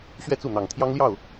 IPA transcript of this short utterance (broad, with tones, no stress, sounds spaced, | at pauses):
ɕ ɥ ɛ˥˧ t͡s u˥˩ n̪ ɑ˨˩ ŋ t̪ʰ j ɑ˥ ŋ l j ɑ˥˩ ʊ̯